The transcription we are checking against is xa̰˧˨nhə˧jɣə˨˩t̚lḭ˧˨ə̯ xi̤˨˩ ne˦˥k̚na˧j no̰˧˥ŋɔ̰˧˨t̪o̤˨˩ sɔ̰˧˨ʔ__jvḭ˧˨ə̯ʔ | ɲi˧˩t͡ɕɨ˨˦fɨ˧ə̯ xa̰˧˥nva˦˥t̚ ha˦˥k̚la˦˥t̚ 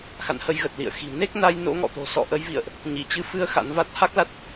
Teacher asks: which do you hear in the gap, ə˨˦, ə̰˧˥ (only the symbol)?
ə˨˦